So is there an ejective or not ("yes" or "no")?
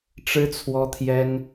no